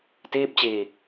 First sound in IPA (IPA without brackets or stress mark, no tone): t